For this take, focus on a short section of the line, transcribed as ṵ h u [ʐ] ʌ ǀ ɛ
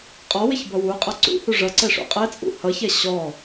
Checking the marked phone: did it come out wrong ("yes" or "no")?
no